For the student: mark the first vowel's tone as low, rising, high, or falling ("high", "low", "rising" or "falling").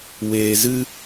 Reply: low